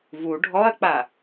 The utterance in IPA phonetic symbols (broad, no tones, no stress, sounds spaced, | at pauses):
v u ɖʱ ɔ ɐ̯ k͡p a